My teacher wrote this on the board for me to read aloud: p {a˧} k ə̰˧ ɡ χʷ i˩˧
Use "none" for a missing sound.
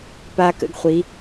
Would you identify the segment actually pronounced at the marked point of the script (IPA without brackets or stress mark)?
a˧